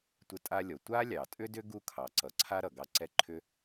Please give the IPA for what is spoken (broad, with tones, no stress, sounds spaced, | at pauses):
tʷ ə˧ tʼ a˧ lʲ ɔ˩ tʷ a˥ lʲ ɑ˩ tʼ ʏ˥ d ʏ˥ ɡ u˥ kʰ ɑ˩ ǀ ʌ˩ ǀʰ a˥ ɾ ʌ˩ ɡ ɑ˥ ǀ ɛ˥ ǃʰ ʏ˥